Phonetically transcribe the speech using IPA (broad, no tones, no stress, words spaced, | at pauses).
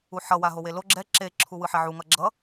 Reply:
uħʌ waɦowelo ɡ͡ǁɛ ǁe ǁʰuwɯħɛʕu ŋʌɡ͡ǁʌ